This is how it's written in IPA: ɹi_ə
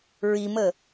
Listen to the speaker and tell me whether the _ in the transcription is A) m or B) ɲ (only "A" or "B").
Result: A